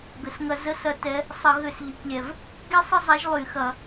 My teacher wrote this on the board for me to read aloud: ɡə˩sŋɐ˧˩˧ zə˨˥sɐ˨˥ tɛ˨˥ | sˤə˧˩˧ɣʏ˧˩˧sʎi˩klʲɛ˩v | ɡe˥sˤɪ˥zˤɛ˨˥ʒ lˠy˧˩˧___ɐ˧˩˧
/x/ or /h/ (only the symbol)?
x